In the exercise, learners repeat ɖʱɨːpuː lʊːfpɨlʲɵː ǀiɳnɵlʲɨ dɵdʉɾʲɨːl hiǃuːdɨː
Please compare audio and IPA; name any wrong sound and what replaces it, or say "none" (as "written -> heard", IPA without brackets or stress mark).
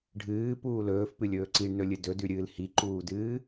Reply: ʊː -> ɵː